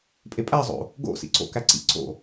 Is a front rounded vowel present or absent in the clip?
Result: absent